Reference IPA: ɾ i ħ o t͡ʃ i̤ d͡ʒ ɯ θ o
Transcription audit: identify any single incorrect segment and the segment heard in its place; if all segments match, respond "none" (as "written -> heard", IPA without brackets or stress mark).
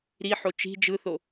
none